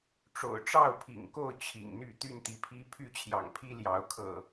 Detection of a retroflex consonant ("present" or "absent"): present